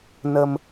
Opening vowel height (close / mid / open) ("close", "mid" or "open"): mid